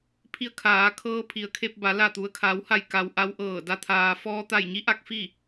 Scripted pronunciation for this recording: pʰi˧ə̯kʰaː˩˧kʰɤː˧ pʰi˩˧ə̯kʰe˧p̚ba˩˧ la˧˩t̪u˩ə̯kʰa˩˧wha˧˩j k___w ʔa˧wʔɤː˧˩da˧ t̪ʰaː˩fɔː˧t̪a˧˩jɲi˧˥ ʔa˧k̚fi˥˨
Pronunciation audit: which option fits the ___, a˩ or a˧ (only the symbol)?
a˩